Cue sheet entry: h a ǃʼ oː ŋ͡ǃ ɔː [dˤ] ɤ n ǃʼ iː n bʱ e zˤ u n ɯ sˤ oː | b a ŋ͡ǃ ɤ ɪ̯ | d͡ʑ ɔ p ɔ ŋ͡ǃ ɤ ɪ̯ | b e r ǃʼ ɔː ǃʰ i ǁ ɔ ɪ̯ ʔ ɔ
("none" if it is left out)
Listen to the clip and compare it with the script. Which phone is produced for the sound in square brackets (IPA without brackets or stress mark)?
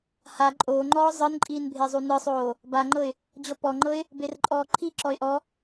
zˤ